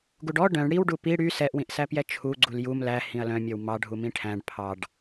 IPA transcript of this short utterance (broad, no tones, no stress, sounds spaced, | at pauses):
ɡ u ɖ ɔ ɖ œ̃ ɳ ɽ i w ɖ u p i ɽ y s ɛ ʔ w ĩ ʔ s æ p j ɛ t͡ʃʰ u ɡ͡ǀ u l j u m l æ h ĩ ɐ̯ l œ̃ mʲ ɔ w m ɑ ɖʱ u m ĩ ʈʰ æ̃ ɖ pʰ ɑ ɖ